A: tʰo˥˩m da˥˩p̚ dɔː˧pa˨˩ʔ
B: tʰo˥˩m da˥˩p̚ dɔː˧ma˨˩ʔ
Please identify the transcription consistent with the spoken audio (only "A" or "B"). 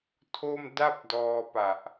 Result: A